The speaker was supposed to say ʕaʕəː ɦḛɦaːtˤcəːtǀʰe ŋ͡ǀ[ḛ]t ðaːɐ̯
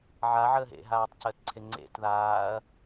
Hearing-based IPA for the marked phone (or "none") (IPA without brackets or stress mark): ḛ